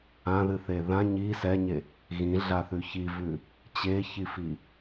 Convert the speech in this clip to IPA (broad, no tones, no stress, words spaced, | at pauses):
ãðɨθe ðã ɲi sɛɲe | ɣĩɮaθʉ çivʉ | t͡ɕeçifi